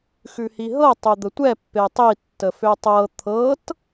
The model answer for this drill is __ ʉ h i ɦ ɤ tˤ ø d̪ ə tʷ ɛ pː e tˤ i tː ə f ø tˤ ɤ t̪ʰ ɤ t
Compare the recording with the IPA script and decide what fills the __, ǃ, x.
x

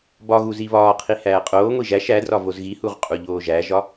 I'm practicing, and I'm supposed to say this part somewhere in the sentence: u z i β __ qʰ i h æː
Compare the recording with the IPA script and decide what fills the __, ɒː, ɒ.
ɒː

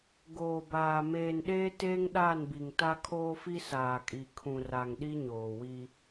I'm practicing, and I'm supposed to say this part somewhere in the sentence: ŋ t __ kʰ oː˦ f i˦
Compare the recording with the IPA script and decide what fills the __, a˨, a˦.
a˦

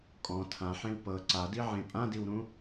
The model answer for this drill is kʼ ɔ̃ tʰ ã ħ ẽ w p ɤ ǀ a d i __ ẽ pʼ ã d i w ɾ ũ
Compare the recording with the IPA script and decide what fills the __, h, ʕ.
ʕ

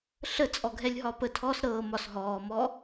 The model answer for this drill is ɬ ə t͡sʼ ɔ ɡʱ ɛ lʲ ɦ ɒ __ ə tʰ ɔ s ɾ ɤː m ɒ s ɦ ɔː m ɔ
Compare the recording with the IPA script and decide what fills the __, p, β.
p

